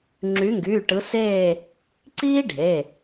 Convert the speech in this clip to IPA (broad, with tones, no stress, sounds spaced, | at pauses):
ŋ͡ǁ y˨˦ ŋ ɡ yː˩˧˩ ʈ ɯ˨˦ s eː˦˨ | ǀ iː˥ ɖʱ e˩˧˩